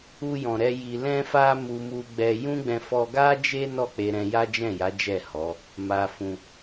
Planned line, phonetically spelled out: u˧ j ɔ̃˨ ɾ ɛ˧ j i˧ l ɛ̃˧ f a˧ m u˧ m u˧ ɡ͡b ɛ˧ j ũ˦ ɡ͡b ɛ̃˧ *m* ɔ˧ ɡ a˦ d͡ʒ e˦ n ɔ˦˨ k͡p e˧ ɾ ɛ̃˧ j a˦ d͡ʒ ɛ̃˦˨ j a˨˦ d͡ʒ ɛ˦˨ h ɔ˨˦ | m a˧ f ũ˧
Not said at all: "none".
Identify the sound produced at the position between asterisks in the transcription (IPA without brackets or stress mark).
f